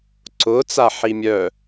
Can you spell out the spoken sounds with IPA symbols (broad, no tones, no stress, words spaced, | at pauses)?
ǀʊ t͡saħimʲœ